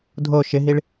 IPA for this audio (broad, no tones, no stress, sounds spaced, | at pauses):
dʱ o ʃ ɪ ɦ i ɭ